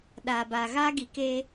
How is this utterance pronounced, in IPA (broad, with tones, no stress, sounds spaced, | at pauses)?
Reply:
ɗ aː˨ b aː˨ ɣ aː˦ ɡ i˨ k e˦